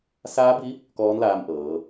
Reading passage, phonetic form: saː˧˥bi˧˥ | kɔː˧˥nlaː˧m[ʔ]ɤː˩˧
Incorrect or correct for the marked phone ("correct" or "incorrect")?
correct